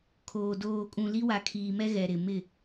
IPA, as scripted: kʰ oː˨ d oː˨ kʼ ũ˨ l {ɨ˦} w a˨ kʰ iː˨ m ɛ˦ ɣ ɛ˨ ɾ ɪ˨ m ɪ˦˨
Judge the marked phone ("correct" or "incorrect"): incorrect